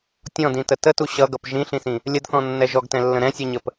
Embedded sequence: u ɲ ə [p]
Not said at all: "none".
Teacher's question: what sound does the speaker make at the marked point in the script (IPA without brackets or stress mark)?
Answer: p